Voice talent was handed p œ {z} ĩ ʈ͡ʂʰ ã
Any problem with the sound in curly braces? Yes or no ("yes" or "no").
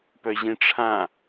yes